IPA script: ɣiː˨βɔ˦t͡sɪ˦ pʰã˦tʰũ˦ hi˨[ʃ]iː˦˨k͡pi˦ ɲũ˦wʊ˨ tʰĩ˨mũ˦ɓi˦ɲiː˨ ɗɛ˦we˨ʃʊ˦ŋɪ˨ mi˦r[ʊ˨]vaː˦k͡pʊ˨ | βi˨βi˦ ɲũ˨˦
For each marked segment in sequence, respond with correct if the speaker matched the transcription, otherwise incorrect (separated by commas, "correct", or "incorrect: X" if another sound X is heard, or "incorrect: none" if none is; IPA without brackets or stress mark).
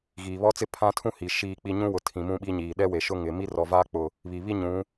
correct, incorrect: ɔ˨